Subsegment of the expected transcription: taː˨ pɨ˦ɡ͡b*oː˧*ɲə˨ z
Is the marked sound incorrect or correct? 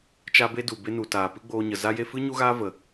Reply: correct